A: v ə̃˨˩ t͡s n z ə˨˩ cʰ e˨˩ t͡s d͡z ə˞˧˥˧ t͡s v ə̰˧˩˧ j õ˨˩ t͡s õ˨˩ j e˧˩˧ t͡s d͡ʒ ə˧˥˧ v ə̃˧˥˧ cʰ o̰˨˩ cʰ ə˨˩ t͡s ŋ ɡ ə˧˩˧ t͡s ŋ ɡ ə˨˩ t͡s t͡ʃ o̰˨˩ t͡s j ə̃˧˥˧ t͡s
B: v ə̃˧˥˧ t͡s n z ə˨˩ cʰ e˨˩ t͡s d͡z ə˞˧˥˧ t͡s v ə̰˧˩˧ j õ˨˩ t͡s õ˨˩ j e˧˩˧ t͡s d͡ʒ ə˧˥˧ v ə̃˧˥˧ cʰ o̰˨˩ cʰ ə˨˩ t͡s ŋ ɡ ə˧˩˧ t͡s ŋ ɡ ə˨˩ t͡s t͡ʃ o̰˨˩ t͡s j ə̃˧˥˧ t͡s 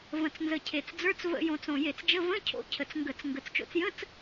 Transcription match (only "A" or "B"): A